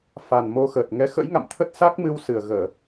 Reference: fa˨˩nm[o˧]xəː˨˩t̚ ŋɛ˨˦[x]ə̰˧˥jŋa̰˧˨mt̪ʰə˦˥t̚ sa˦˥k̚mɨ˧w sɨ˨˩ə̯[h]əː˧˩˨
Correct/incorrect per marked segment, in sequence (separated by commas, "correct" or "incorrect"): correct, correct, incorrect